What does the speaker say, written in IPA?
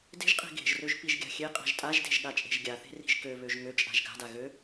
de̤ʒqʼe̤ ɡe̤ʒrøʒ piʒɡʲa̤xʲeqʼa̤ʒ tʼaʒde̤ʒ ɠat͡ʃʼe̤ʒɡʲaθe̤ ri̤ʒkøβøʒ ŋøt͡ʃʼa̤ʒ ɡa̤da ɣø

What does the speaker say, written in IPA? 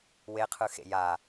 weqʰɯxḛ ja

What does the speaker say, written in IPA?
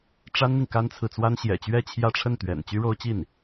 ʈ͡ʂa˥nn̪i˨ŋ ka˥nt͡sʰɹ̩˨t͡swa˥n ɕjɛ̰˨˩t͡ɕɥɛ˥˧ t͡ɕʰjä˥˧ʈ͡ʂʰə˥˩nt̪ɥɛ̰˨˩n t͡ɕy˥ɻo˥ʊ̯t͡ɕi˥˩n

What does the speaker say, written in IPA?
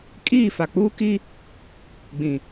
kʼiː˦˨fa˨k͡puː˦ ki˦ | ɡ͡bĩ˨

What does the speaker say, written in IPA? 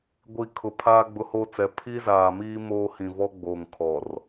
ɡʷi˨ kʰʊ˨pʰaː˦ ɡ͡bʊ˦hoː˦t͡sɛ˨˦ pʰi˦zaː˨miː˦ moː˦hĩ˨vɔ˦ ɡ͡boː˨ŋkʰɔ˨r

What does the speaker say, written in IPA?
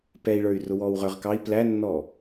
pɛi̯ɭə˞y̯ rʊwɔːwʁə˞ʁkɑi̯ plænːɔ

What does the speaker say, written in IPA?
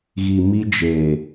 ɣi˨mi˧d͡ʒeː˨

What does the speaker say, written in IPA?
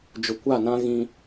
d͡ʒʊ˨kʷa˦˨nã˦ ɣĩ˦

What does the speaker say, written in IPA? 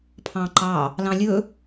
pʰɑ̃ǃɑ | lɑ̃lʲɵ

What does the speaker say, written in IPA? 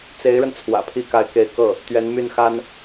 t͡se˧˥ɪ̯ɻə˧n t͡sʰwä̰˨˩pʰi˥ ka˧˥ɪ̯ke˧˥ɪ̯kɤ˥˩ | t̪ɥɛ˧˥nmy˥˩nxa˥n

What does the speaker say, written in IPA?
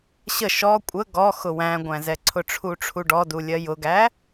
ɕə ʃɔ kʷʼə ɡɔ xʊwæ̃ɡʷæ̃zɛ ǀʰʊʈ͡ʂʰuʈ͡ʂʰuɖɔ dulʲɜjʊɡæ

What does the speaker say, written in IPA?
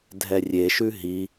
dʱɛrʲeʃʉ ɦi

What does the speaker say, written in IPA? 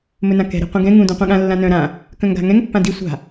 mɵnãkɛ̤ ɾi̤qʷĩɡɛ̃ ŋũ dũqʷĩɠã lːãnœ̃ ɾã | kœ̃ŋɡa̤ŋɛ̃ŋ pːãdi sʷa̤

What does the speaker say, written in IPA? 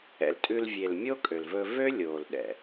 ɛ̰˨ltʼʉ˧lvʲe˨l mʲo˦kʼø˨lvɵ˧ vø˦lʲoː˨lɗɛ̰˨

